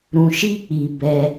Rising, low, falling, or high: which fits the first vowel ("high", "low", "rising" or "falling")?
low